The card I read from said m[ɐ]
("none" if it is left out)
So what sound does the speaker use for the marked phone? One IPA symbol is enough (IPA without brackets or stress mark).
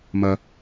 ɐ